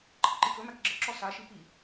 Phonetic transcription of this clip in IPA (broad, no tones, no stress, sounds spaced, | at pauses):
ǃʰ ə̰ ǃ i k ɵ m æ k ɡ͡ǁ ə̰ ǁ ɔ s a ʃ i p i